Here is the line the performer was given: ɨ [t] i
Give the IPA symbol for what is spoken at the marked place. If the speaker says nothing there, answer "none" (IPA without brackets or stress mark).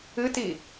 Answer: t